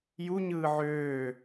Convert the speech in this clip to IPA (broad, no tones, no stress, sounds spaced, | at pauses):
j u ɲ ɯː ʕ øː